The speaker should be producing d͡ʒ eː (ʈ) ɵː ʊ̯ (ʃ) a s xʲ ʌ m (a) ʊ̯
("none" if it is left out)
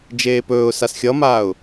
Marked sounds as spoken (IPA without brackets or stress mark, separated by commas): p, s, aː